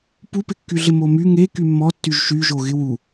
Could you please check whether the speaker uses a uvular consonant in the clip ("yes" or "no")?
no